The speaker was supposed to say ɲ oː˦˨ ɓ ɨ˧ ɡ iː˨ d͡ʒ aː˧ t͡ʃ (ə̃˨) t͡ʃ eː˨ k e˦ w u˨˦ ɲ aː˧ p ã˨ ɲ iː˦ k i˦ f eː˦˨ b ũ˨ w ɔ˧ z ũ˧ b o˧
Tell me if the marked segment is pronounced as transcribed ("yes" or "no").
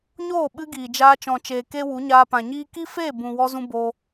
no